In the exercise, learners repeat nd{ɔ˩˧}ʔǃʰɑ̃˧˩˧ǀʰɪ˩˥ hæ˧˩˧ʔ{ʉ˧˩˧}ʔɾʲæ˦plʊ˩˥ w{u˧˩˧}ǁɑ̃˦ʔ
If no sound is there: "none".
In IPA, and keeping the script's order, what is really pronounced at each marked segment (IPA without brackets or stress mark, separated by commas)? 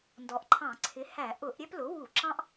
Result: ɔ˩˧, ʊ˧˩˧, u˧˩˧